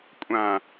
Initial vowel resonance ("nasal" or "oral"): nasal